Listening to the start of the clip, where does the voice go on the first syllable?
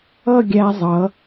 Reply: falling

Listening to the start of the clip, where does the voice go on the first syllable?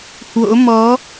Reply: rising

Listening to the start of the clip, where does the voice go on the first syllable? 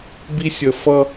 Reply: high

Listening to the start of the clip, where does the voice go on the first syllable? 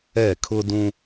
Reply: falling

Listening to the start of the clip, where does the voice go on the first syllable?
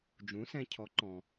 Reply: rising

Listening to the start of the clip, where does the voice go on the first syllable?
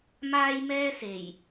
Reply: high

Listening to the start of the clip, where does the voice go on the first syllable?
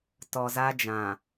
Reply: low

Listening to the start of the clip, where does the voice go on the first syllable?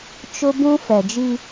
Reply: high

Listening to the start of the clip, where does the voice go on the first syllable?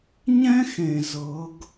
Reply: high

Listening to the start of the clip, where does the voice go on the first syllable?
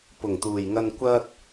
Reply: low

